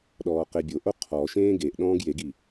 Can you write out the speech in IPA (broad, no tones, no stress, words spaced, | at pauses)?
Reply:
ɗɔːqebʲoʔo qʰɔ ʃẽːɡeʔɗɔ̃ːɡ jeɡi